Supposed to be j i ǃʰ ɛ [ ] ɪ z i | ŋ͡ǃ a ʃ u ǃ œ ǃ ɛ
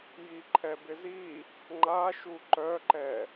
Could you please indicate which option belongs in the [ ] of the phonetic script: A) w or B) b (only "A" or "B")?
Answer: B